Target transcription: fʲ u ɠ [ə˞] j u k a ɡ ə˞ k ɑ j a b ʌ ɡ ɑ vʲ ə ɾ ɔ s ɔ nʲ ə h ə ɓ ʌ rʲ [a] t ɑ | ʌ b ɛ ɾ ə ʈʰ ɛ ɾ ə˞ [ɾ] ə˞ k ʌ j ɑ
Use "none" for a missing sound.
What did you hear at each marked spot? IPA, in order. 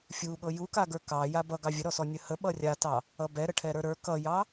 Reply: ɤ, a, ɾ

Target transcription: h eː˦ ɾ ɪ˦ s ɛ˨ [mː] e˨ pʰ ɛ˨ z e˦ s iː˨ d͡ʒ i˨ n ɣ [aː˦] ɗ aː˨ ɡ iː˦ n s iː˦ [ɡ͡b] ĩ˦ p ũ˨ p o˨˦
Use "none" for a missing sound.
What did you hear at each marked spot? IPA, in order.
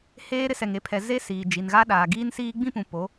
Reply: ŋ, a˦, ɡ͡b

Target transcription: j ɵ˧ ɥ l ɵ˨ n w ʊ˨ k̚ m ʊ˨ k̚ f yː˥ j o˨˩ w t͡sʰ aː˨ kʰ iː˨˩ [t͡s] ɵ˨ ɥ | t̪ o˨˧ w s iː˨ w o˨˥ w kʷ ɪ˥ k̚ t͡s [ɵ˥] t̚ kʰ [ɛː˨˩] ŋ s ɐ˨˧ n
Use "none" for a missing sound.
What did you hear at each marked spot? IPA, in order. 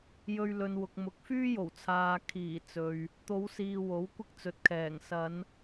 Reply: t͡s, ɵ˨, ɛː˨˩

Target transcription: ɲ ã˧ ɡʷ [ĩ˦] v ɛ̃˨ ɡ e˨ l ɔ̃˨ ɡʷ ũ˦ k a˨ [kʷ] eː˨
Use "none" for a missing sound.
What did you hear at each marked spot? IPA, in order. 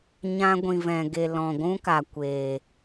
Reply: ĩ˨, kʷ

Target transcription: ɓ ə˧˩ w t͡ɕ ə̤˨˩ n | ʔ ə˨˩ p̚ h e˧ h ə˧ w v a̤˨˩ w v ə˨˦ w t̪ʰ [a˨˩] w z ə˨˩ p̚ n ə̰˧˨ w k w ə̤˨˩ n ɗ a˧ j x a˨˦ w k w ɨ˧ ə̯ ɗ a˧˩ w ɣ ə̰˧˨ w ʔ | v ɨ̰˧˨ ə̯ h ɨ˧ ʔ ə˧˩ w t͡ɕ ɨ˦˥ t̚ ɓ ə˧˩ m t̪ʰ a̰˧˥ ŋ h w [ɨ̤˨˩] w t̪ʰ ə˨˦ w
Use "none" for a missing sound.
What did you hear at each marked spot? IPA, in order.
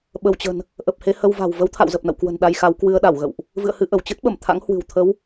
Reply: a̰˧˨, ɨ̤˨˩

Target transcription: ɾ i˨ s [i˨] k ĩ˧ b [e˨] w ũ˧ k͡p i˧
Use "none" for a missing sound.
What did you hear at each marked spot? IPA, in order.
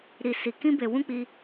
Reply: i˨, e˨

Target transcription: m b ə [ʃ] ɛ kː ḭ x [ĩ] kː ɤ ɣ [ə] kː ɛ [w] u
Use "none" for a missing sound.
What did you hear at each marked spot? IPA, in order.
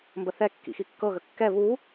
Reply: θ, i, ə, β

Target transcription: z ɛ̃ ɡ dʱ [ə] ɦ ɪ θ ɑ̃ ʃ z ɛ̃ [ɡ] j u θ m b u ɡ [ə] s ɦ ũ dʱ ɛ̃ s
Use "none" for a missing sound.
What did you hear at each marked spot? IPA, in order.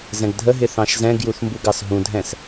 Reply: ə, ɡ, ɑ

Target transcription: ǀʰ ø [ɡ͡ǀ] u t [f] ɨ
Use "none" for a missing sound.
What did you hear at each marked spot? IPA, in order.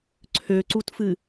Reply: ǀ, f

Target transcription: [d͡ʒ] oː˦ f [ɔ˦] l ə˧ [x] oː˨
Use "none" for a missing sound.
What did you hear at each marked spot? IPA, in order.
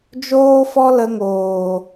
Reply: d͡ʒ, ɔ˦, ŋ

